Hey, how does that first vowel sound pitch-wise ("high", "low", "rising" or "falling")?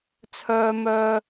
high